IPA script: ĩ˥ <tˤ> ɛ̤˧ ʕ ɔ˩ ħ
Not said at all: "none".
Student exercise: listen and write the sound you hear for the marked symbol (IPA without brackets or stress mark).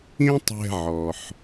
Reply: tˤ